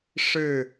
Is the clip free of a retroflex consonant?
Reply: no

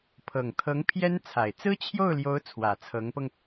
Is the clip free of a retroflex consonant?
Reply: yes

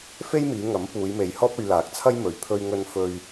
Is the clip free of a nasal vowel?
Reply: yes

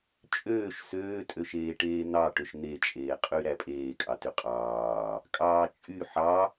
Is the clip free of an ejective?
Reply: no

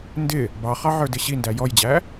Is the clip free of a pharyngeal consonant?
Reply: no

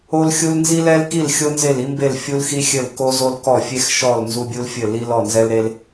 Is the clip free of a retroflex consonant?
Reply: yes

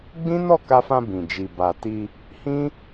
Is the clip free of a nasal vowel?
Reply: no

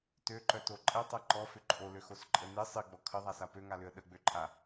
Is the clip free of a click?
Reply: no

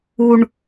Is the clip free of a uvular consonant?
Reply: yes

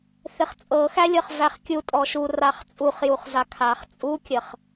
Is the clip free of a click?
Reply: yes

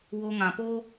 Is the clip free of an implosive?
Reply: yes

